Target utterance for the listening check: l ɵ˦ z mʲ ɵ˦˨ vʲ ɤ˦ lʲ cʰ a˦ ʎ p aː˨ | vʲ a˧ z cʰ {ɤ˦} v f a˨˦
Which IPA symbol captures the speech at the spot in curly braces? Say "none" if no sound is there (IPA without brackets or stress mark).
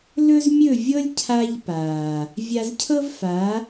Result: ɤ˦